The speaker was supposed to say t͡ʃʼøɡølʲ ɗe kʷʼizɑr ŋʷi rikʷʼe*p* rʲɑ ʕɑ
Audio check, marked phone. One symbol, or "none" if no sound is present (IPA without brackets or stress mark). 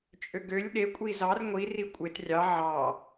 t